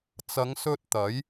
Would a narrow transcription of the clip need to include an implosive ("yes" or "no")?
no